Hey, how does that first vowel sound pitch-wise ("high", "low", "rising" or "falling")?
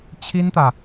high